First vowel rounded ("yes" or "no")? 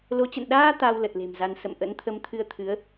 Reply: yes